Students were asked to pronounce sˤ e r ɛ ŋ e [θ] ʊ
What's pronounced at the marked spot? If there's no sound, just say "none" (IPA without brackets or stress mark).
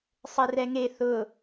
θ